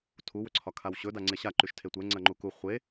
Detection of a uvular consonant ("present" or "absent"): present